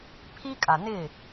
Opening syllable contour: high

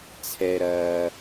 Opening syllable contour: low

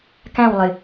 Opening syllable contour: falling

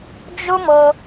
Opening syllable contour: high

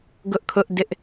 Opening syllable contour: high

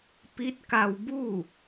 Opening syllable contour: rising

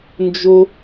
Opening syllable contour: high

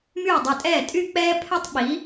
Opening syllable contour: falling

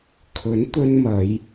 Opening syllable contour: rising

